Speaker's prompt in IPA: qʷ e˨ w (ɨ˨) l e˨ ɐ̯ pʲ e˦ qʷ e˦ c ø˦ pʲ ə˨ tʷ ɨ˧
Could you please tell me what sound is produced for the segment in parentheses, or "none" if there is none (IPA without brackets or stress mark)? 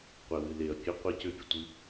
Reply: ɨ˨